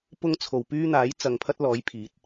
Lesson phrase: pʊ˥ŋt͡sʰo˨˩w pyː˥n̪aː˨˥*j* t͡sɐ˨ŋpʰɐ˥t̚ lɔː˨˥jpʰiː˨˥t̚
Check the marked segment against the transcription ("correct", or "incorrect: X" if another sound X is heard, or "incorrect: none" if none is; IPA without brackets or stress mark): correct